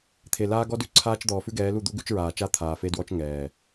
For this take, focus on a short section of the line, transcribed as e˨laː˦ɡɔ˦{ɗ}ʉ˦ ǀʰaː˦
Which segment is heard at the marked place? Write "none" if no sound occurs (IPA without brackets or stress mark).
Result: d